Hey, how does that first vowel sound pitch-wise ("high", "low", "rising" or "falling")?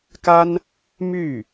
high